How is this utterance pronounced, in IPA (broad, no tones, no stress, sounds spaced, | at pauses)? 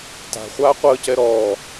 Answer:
t a̤ χʷ aː qʷ əː c ɛ ɾ ɔː